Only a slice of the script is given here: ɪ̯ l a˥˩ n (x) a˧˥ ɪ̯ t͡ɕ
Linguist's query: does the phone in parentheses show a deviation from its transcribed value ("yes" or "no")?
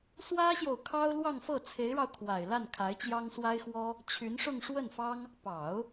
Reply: yes